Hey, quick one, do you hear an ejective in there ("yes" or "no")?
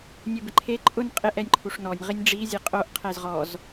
yes